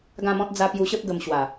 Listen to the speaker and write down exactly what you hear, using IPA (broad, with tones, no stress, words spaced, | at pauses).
ɡã˥˧mɔ̃˦t̚ d͡za˧ pju˧ɕə˦p̚ ɡə˧m ɕwa˨˩